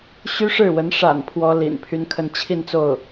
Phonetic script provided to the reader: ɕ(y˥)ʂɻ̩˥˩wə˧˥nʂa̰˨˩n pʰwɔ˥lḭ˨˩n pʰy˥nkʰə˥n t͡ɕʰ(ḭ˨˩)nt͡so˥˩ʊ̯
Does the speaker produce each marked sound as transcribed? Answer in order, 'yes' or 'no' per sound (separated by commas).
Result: yes, no